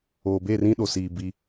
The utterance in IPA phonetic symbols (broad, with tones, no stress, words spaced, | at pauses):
oː˨be˦˨rĩ˦ ɗo˨siː˨ bi˦